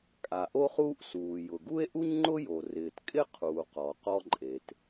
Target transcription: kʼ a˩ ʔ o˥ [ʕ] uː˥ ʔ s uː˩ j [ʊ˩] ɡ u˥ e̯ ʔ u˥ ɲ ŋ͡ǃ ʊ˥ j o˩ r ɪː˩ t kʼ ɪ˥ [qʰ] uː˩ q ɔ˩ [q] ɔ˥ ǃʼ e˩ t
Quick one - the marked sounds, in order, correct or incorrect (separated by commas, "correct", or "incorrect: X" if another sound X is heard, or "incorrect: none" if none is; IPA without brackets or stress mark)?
incorrect: χ, correct, correct, correct